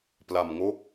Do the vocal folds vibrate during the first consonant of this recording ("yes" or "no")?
no